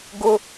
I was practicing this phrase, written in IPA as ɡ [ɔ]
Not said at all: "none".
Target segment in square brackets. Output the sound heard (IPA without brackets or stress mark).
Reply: ʊ